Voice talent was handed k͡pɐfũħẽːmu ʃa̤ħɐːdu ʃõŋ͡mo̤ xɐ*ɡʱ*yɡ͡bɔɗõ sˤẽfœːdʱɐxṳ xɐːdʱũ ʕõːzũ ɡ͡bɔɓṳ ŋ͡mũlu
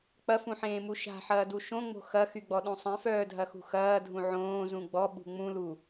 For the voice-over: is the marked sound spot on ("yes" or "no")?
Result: no